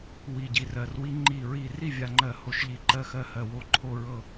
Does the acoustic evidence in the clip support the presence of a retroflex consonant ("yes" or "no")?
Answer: no